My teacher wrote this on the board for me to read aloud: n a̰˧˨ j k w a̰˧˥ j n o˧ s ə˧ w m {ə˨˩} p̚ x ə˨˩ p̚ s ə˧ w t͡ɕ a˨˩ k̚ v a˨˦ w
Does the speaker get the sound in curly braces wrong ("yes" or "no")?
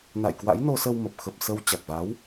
no